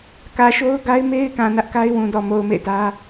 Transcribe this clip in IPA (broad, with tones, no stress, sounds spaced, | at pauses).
k ä˨ ʃ o˦ ʊ̯ ɡ a˦ ɪ̯ m e˦ ɪ̯ k ã˨ n ä˦ ʔ k a˦ ɪ̯ w ũ˨ d ɔ˨ m o˨ ʊ̯ m ḛ˦˨ ɪ̯ t ä˦